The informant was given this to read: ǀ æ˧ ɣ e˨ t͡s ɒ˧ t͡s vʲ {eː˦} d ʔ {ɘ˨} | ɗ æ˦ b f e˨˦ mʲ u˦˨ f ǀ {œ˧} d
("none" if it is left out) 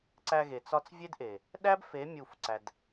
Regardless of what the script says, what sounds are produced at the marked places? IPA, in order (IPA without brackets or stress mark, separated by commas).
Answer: e˦, e˨, æ˧